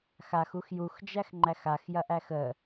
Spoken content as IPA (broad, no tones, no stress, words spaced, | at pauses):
xaxux juxd͡ʒæxŋ͡ǃæx axjɐʔæx ə